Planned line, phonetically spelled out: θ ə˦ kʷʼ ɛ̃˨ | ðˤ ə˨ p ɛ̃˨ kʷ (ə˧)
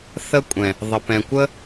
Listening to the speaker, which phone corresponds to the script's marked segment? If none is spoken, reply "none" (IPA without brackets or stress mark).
ə˦